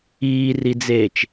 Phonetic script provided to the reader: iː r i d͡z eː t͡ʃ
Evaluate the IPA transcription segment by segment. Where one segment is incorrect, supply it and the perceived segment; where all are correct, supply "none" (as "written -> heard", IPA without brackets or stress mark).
none